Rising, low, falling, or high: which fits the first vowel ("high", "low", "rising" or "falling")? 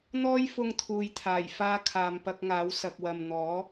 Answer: high